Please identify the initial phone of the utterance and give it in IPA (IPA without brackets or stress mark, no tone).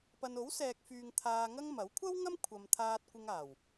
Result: p